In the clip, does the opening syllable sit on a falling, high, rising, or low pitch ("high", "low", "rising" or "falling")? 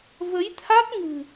rising